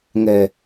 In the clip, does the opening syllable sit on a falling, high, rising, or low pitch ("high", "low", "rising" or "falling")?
low